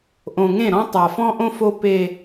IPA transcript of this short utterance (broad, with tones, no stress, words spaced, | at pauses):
ʔõ˨ŋẽ˦˨ɾɔ̃˦ tˤa˨fɔ̃˦ʔõ˦ fo˦ pe˦